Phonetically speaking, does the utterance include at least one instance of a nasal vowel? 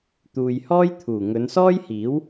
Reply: no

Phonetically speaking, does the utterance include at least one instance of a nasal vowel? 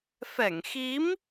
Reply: no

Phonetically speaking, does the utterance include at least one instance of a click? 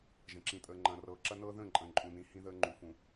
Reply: yes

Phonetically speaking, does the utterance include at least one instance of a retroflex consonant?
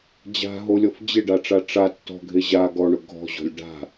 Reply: yes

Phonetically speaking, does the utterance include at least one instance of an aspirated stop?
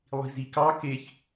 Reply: no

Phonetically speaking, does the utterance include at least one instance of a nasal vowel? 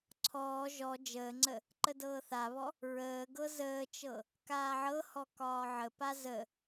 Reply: no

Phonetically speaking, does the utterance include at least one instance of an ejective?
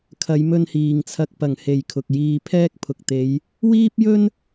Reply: no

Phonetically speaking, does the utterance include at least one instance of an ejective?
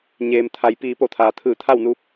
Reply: no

